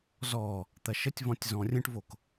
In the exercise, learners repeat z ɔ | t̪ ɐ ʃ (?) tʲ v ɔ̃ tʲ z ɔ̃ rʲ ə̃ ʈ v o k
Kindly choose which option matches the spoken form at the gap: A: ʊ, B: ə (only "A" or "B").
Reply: B